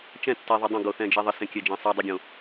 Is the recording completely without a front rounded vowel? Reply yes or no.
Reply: yes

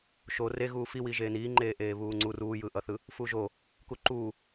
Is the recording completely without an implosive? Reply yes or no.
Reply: yes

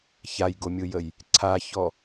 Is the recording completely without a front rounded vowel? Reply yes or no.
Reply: yes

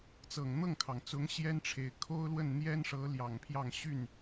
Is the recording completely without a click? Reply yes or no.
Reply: yes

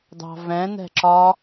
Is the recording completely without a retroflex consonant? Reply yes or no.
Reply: yes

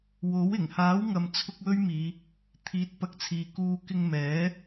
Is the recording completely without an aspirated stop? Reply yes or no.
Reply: no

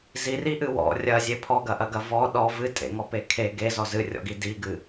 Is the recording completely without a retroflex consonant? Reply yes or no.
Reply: yes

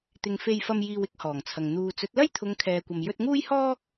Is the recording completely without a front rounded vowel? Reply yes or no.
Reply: yes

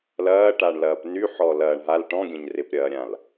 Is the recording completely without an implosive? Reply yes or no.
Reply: yes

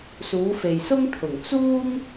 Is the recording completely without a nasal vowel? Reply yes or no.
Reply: yes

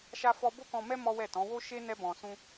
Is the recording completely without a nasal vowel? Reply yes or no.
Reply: no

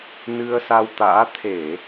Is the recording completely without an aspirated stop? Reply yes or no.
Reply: no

